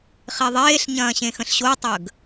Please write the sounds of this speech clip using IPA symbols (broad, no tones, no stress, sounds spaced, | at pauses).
χ e ðˤ eː ɬ ɲ ɐ̃ː ɕ ẽ x ə̃ ɬ ɕ o tˤ əː ɡ